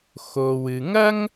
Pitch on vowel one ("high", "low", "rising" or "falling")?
low